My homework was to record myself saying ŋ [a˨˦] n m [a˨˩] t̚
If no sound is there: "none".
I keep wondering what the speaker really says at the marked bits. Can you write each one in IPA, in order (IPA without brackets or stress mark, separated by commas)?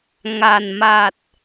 a˨˩, a˨˩